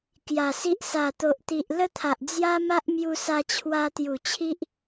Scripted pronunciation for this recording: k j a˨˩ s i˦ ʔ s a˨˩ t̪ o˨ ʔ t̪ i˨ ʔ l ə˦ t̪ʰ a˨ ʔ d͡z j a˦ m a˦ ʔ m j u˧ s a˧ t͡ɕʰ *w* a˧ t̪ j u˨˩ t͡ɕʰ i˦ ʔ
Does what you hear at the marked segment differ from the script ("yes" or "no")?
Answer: no